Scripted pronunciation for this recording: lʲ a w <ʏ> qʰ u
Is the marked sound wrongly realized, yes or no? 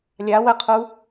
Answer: yes